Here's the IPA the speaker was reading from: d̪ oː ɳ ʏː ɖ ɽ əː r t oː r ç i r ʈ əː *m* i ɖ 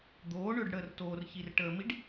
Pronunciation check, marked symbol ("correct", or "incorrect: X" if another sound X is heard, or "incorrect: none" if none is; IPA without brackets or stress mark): correct